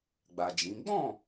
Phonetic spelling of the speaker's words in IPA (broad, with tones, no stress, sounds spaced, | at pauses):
ɡ͡b a˨ d͡ʒ ĩ˨˦ ɡ͡b ɔ̃˦˨